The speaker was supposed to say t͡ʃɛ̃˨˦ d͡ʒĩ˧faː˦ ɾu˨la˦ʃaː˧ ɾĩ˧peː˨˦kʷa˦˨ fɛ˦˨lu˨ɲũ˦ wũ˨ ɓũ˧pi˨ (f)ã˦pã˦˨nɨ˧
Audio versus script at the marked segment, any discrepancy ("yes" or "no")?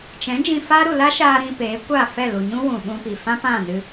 no